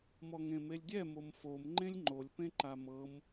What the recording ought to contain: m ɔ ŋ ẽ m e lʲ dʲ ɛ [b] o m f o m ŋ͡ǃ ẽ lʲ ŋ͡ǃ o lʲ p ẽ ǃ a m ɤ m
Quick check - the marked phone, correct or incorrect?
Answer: incorrect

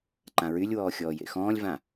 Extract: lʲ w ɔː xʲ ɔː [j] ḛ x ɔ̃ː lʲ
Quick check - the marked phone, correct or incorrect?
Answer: correct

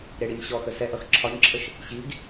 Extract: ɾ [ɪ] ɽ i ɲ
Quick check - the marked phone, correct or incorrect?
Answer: correct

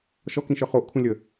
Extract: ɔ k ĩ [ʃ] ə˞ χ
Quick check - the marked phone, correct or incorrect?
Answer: correct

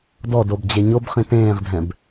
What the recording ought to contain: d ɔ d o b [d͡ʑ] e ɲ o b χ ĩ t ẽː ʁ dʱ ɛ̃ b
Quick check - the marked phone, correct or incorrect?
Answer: correct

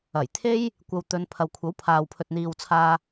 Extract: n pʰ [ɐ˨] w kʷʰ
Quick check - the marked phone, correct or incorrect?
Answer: correct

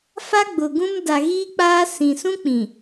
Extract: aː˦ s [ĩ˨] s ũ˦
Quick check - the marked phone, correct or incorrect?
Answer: correct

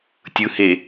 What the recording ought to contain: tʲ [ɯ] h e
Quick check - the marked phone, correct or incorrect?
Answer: correct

